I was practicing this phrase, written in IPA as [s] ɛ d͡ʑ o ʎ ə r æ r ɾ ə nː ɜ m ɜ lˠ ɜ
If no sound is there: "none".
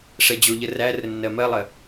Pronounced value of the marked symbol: ʂ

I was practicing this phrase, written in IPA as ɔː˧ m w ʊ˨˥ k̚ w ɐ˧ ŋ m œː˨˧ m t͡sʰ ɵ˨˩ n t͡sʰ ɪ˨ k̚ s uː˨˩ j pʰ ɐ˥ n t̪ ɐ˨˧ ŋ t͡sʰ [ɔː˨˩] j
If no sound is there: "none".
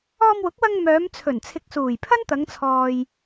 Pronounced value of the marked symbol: ɔː˨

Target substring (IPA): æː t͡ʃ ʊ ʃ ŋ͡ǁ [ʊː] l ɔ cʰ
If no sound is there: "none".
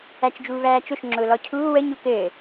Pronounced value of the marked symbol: ʊː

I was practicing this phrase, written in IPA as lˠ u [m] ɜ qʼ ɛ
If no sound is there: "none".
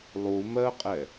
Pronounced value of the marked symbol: m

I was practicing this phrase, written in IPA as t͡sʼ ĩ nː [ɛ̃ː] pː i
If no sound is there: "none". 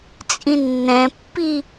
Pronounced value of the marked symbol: ɛ̃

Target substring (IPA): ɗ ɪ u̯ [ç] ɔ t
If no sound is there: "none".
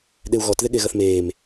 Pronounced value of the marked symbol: ɣ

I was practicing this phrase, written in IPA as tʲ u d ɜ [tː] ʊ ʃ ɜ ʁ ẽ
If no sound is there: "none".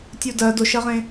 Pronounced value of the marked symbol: d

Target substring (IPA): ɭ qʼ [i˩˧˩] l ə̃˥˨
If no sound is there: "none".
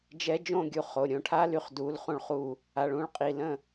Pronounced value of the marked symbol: i˩˧˩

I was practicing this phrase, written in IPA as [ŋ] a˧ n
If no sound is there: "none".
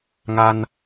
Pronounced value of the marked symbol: ŋ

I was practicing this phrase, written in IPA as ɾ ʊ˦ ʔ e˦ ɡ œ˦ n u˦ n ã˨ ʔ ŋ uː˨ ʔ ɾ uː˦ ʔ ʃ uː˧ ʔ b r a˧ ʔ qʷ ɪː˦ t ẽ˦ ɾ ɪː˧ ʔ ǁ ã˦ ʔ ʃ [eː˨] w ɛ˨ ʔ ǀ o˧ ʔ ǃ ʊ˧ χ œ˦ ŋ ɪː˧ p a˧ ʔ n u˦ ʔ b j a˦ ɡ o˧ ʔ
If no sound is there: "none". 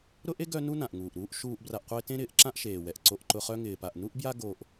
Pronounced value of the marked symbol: eː˨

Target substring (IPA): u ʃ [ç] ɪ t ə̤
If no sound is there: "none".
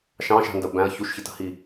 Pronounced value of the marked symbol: ç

